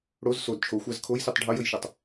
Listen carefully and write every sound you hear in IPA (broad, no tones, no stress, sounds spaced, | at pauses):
ɽ o z s o d t͡ʃʰ o xʷ a z kʰ o j s i tˤ ɖʱ ʌ j ə j ʃ e tˤ